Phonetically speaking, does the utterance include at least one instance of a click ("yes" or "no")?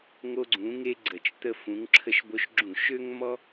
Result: yes